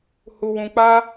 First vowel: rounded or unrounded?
rounded